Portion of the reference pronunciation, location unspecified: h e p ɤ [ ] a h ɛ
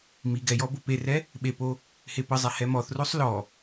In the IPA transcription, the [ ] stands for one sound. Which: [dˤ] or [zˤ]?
zˤ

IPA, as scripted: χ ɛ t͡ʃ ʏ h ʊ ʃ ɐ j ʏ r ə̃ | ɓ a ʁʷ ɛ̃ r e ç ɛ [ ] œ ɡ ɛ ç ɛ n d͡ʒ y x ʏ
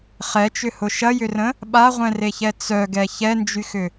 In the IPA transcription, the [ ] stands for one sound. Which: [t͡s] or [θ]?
t͡s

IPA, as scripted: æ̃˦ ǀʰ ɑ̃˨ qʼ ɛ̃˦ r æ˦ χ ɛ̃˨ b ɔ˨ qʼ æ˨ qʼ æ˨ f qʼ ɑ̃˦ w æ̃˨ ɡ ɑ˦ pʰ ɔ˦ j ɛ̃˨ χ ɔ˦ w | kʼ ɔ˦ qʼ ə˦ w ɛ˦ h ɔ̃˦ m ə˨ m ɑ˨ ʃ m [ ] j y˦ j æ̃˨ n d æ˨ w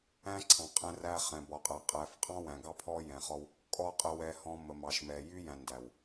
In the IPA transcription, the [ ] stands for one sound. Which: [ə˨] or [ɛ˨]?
ɛ˨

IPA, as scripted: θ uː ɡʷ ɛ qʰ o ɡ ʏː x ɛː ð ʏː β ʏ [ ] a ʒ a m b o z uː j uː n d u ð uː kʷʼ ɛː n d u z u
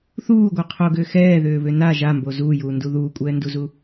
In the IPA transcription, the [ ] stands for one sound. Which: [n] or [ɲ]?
n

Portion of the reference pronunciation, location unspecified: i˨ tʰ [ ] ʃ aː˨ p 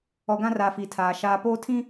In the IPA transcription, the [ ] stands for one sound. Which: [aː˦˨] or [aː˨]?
aː˨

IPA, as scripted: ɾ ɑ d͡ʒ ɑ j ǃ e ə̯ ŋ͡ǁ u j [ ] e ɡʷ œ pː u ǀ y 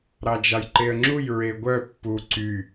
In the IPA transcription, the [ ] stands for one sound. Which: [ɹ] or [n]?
ɹ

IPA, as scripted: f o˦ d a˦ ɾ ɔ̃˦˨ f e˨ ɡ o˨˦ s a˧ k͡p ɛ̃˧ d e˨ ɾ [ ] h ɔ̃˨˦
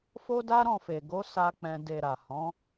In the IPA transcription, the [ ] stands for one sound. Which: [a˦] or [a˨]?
a˨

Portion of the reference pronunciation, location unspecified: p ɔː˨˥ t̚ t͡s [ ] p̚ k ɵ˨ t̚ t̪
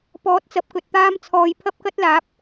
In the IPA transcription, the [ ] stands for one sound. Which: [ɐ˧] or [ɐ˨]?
ɐ˨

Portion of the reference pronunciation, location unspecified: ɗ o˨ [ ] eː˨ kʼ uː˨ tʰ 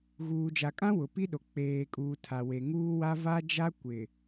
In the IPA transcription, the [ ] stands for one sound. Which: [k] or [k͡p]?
k͡p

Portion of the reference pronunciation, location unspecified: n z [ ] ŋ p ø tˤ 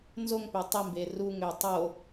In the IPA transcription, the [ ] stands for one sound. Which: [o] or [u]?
o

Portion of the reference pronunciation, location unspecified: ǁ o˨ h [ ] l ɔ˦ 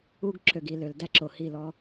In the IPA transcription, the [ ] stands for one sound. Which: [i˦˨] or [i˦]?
i˦˨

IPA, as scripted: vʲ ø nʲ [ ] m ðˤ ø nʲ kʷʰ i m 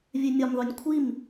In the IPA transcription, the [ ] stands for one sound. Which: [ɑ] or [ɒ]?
ɒ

